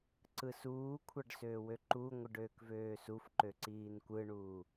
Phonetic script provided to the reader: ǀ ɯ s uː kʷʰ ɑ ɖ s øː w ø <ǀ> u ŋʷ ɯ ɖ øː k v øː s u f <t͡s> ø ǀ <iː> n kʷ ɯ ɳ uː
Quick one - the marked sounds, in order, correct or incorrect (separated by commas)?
incorrect, incorrect, correct